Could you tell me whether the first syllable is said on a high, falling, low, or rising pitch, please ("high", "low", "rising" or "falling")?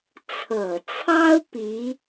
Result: low